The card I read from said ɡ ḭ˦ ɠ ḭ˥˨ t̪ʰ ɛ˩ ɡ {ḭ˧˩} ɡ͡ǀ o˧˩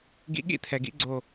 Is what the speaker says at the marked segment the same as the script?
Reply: no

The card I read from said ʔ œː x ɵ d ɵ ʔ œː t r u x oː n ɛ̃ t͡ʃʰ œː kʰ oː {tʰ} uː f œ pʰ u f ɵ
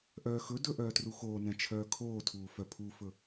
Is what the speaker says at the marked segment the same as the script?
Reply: yes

